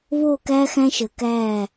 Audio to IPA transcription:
βoː˦˨kæː˦xæ̃˦ʃəː˨ kæː˦˨

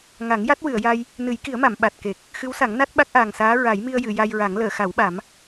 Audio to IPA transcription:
ŋa˨˩˦ŋ ja˦˥t̚wɨ˨˩˨ə̯ja˧j | nɨ˨˩˦jki˨˩˦ə̯ma˨˩˨m ɓa˨˩t̚ke˨˩k̚ | xɨ˧˥wsa˨˩˦ŋna˦˥t̚ ɓa˦˥k̚ʔaː˨˩ŋsaː˧˥ ɹa˨˩˦jmi˧ə̯ jɨ˨˩˨ ja˧jɹa˨˩˦ŋ ləː˨˩˨ xa˨˩˦wɓa˨˩˦m

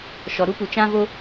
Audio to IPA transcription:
ʃɔ˨ɾu˦pu˨ t͡ʃã˦vo˦

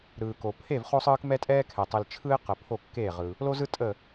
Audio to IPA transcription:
ɾɯː˩ko˩ pʰe˧˩v χo˧sˤɯː˧k mɛ˧tʼɛː˧kʰɛ˩ tˤe˩lt͡ʃʰɯ˧ɪ̯ qə˩pʰo˧˩kːeː˧˩ ʁɯ˩ | lo˧zɯ˧tʼə˧˩

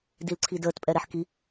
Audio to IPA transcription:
dilǀʰidəːtpʼɛ ɾɛħki

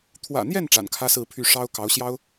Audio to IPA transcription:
t̪ʰwä̰˨˩n̪jɛ˥˩n ʈ͡ʂa̰˨˩nkʰä˥sɹ̩˥˧pʰy˥˩ ʂɑ˥ʊ̯ kɑ˧˥ʊ̯ɕjɑ˥ʊ̯

